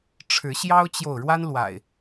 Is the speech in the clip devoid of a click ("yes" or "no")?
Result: yes